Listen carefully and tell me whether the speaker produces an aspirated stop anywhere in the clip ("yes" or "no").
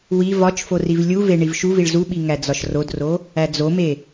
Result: no